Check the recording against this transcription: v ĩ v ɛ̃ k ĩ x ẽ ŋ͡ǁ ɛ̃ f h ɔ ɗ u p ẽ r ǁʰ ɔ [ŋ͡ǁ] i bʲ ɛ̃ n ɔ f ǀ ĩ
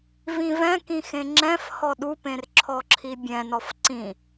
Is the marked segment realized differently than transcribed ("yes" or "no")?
yes